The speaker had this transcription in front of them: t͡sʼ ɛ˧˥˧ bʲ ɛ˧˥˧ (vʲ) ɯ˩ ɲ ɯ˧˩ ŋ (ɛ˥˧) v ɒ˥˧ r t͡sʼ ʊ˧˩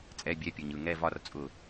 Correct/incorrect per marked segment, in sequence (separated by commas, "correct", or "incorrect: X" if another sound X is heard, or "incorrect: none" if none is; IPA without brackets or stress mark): incorrect: pʲ, correct